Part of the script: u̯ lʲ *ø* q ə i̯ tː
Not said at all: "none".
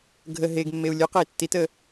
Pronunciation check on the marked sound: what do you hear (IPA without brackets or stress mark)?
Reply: ø